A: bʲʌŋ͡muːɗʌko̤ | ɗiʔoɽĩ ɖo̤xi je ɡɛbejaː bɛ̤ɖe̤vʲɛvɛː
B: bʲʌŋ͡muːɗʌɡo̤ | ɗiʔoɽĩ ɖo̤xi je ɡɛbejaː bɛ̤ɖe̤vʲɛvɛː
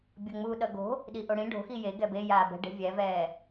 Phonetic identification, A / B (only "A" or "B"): B